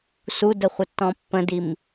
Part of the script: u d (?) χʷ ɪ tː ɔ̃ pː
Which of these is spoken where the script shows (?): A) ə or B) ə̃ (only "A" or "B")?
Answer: A